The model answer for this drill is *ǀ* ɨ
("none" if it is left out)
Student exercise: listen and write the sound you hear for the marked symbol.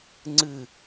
ŋ͡ǀ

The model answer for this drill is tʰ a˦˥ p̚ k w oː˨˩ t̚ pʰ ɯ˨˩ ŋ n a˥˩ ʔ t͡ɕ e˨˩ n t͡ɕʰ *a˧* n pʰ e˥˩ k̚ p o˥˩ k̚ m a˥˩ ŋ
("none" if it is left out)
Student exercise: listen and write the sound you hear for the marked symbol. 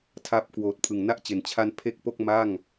a˧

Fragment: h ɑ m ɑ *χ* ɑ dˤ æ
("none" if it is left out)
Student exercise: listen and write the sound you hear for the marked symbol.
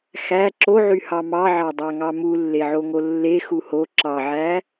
ʕ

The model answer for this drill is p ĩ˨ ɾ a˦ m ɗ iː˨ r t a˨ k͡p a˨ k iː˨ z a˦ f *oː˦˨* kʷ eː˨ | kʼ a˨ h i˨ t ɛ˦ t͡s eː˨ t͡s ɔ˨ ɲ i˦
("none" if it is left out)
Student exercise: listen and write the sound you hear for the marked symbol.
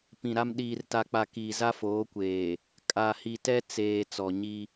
oː˨˦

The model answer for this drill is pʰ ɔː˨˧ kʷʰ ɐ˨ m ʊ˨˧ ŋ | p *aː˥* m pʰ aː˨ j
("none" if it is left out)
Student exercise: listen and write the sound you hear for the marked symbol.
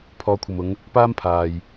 aː˥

